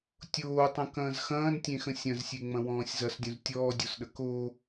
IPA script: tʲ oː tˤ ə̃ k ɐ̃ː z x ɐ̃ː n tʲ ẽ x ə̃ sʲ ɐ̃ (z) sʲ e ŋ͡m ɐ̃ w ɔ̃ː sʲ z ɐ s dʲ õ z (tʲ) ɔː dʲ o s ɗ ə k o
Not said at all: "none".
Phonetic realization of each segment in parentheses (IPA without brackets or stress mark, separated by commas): z, tʲ